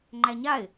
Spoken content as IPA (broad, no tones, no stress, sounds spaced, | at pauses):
ŋ͡ǃ æ ɲ a ɪ̯